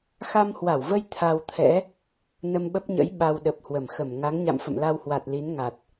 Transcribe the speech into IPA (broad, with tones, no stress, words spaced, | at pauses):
xa˧mhwa˧˩wvə˧j t̪ʰa˧wt̪ʰɛ̰˧˥ | nə˧mɓə˦˥p̚ɲə̰˧˥j ɓa˧wɗə˨˩p̚hwə˧˩mxə˧˩m ŋa˨˦ŋɲa̰˧˨m fə̰˧˨mla˧whwa˨˩t̚ li˨˦nŋa˨˩t̚